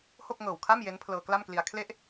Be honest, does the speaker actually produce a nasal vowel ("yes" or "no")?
no